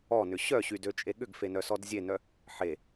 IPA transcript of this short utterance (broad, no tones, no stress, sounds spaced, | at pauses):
ɔ n ʏ ɕ œ ɕ y d ø t͡ʃʼ e ɠ ʏ ɡ f e n œ s ɔ d zʲ e n œ | ħ e